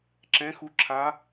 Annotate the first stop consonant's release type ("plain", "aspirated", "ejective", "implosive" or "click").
click